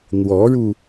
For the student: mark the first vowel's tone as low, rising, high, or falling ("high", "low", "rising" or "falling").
rising